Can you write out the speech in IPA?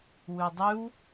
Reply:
w ʉ dˤ ʉ w

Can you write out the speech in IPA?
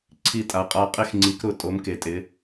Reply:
ǀʰ i˧ tʼ a˩˧ qʼ a˧ qʼ e˧ x ŋ͡ǀ i˩˧ k ɾ ʊ˩˧ tʼ o˩˧ m k e˩˧ tʼ ɪ˩˧

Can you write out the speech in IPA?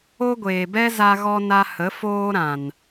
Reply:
o˦ ɡʷ eː˨ b ɛ˦ z a˧ ɣ ɔ˧ n a˧ h ə˨˦ f oː˧ ɾ ã˨ n

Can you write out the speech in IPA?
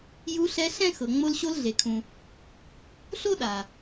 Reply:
j u˧ ɬ ɛ˧ ɬ ɛ̃˥ x ɤ˩ ŋ͡m o˧ l ɕ o˧ l ɮ e˩ kʰ ũ˩ | ɬ o˥ ɗ a˩

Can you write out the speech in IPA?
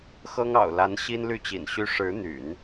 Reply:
x ɤ˥ ŋ ɑ̰˨˩ ʊ̯ l a˧˥ n ɕ i˥ n l y˥˩ t͡ɕ ḭ˨˩ n ɕ y˥ ʂ ɻ̩˧˥ n̪ y̰˨˩˦ n

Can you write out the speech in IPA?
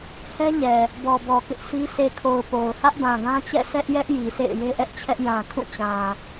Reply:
h ɛ˦ ɲ ɛ˨ | b ɔ˨ b ɔ˨ k ɪ˦ ʔ sʰ i˦ sʰ e˨ kʰ o˨ ʊ̯ p o˨ ʊ̯ h ä˦ ʔ b ã˨ ɡ ã˦ t͡ɕ ɛ̰˦˨ sʰ ɛ˦ ʔ j ɛ˦ ʔ j i˨ sʰ ḛ˦˨ ɪ̯ j e˦ ʔ ɛ˦ ʔ t͡ɕʰ ɛ˦ ʔ j ã˨ kʰ ũ˦˨ t͡ɕ ã˨

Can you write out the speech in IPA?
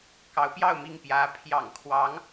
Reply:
k ɑ˧˥ ʊ̯ p j ɑ˥˧ ʊ̯ m i˥˩ ŋ p j ä˧˥ pʰ j ɑ̰˨˩ ŋ kʰ w ɑ˧˥ ŋ

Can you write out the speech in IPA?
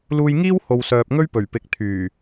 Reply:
l uː˧ j ŋ iː˥ w h o˨ w s œː˨ p̚ ŋ ɵ˥ ɥ p ɵ˨˩ ɥ p ɪ˨ k̚ t̪ʰ yː˨˩

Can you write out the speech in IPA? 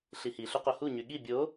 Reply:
ɬ i h i ɬ o q o h u ɲ y ɠ i bʲ o

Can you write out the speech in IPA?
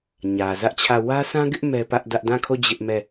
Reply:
ɲ ä˨ z ä˦ ʔ t͡ɕʰ ä˦˨ w ä˦ sʰ ã˦ ɡ ɪ˦ ʔ m ɛ˦ p ä˦ ʔ d ä˦ ʔ d ã˦˨ kʰ o˦˨ d͡ʑ ɪ˦ ʔ m ɛ˦˨

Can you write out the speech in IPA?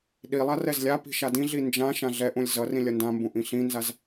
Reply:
ɗ i lˠ a r ɛ z lʲ a p i̤ ʃ a d ĩ ɮ i n d͡ʒ ã ʃ ã ɮ ɛ ʔ ũ lʲ z ʌ r ĩ lʲ ʌ n d ã m b ũ ʔ ĩ ɬ ĩ n z a z

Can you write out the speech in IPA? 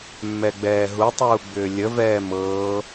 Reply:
mː ɛ ɡ͡b ɛː ɦ u tˤ uː ɡ͡b ʏː lʲ ə v ɛː m ɤː

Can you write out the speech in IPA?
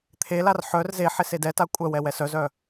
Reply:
t̪ʰ e l a r ħ œ r z e ħ e s e d ɛ t a kʷʼ œ w ɛ w ɛ s œ z œ

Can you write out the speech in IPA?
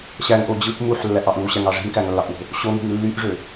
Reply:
ɕ æ ŋ ʔ o d͡ʑ ɯ ʔ m u ħ lː æ ʔ ɑ ʔ ɯ w ɕ æ ŋ ɑ ʐ i̤ m k æ ŋ lː ɑ ʔ w o̤ | ɕ o ŋ i̤ m lː y ʔ ʐ ø

